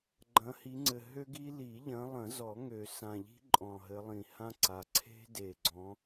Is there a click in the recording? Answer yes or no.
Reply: yes